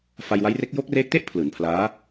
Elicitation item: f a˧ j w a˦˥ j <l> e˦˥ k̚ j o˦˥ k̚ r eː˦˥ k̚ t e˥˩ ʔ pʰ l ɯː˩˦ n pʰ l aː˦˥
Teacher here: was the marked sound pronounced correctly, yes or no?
no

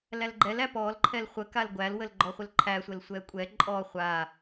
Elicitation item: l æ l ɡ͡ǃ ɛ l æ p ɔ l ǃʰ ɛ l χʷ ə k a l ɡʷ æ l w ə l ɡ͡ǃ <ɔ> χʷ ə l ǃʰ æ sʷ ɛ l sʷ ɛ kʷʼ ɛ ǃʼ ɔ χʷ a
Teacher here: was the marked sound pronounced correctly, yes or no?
yes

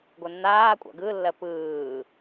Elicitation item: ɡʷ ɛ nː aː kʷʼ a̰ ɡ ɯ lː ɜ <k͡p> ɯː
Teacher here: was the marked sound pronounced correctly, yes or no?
no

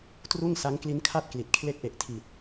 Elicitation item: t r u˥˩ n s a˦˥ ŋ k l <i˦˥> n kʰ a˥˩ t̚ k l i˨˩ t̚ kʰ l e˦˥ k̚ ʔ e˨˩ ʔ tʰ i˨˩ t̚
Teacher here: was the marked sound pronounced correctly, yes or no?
yes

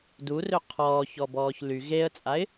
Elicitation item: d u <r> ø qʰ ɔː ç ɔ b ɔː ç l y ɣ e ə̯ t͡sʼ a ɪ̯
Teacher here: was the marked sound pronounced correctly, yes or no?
yes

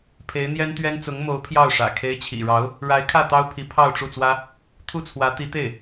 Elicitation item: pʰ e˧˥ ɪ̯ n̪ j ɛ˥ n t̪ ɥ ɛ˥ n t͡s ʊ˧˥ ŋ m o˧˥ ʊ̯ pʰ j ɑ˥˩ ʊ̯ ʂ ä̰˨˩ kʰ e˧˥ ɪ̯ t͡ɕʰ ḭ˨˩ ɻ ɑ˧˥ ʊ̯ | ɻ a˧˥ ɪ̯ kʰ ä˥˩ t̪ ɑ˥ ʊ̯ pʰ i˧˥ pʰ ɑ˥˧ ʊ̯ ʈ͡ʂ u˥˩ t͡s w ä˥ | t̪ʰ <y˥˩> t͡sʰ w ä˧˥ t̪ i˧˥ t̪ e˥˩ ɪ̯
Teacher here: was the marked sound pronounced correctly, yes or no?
no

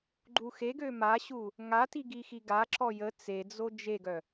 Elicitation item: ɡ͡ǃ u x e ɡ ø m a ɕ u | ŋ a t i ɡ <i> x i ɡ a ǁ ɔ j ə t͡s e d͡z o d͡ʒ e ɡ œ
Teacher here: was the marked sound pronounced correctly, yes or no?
yes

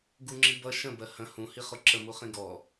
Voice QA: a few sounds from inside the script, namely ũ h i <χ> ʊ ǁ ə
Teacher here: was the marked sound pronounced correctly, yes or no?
yes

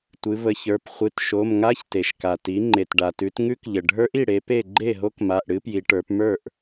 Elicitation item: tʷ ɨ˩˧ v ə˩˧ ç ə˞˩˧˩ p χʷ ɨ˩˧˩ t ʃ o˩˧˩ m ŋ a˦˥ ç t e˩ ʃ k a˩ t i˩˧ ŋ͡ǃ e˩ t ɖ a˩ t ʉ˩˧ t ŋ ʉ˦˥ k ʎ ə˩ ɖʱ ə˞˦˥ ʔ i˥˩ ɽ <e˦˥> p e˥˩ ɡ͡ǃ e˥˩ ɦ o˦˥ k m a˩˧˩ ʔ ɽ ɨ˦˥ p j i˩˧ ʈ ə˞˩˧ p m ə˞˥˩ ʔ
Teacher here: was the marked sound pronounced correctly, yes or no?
no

